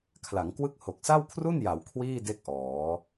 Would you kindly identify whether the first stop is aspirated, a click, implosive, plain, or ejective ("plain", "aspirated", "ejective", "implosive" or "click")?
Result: aspirated